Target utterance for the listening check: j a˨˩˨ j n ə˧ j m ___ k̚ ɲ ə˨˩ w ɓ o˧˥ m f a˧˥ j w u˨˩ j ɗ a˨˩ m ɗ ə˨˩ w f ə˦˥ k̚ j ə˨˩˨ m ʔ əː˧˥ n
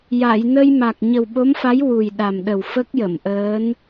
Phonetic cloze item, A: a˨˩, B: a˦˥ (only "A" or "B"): A